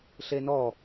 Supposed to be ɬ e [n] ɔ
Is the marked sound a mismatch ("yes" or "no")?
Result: no